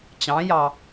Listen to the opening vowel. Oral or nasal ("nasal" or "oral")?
nasal